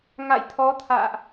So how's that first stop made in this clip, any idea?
aspirated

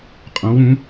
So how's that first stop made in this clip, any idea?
ejective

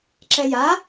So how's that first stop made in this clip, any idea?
click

